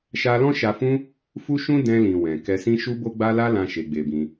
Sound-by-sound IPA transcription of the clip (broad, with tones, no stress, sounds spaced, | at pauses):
ʃ a˧ l ɔ̃˦ ʃ a˧ f ũ˦ | f u˦ ʃ ũ˦ d ɛ̃˧ l ĩ˨ w ɛ̃˨ k ɛ˧ s ĩ˦ ʃ u˦ b o˦ ɡ͡b a˦ l a˦ l ã˧ ʃ e˧ ɡ͡b e˧ b ĩ˧